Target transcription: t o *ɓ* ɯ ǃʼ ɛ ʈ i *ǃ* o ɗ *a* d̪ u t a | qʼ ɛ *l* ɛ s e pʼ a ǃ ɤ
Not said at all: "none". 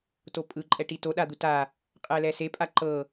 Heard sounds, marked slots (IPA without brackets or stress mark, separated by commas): pʼ, t, a, l